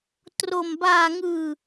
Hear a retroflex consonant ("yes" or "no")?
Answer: no